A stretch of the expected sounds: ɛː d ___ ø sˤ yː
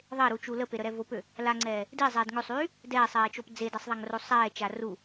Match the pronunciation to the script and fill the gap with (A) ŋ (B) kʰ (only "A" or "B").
A